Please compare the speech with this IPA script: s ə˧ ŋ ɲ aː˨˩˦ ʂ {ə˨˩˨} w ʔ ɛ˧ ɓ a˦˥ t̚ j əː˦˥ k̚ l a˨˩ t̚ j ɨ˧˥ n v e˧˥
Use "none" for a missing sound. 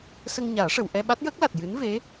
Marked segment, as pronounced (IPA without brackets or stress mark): ə˨˩˨